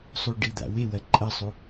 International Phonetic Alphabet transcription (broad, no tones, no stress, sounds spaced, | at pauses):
sˤ u ɖ i d̪ a̰ w e w ɐ ǃʼ ɐ sˤ u